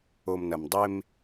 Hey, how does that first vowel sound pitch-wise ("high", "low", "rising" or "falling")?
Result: low